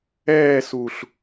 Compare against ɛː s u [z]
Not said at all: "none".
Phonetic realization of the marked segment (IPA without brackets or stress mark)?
ɬ